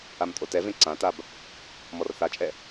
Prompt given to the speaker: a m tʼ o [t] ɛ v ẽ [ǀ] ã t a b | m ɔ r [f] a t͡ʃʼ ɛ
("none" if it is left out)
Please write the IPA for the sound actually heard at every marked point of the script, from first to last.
t, ǀ, θ

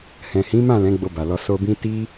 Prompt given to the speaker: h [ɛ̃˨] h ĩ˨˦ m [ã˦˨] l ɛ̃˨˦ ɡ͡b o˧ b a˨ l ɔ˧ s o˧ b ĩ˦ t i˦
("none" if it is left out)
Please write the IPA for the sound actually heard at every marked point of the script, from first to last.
ɛ̃˨, ã˦˨

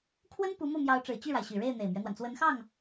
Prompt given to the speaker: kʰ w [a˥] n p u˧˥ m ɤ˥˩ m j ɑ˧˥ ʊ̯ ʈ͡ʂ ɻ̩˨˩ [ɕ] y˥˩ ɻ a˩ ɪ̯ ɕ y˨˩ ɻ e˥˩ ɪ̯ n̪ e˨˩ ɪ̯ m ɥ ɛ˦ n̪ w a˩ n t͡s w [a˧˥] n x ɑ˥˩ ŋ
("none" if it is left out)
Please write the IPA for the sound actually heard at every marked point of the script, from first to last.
ə˥, t͡ɕ, ə˧˥

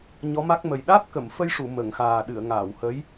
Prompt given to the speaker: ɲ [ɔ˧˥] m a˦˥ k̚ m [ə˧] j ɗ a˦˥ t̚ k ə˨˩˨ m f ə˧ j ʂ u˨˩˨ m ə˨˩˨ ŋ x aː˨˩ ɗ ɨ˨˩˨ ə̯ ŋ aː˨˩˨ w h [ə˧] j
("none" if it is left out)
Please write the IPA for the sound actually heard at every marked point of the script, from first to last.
ɔ˧˥, ə˨˩, ə˧˥

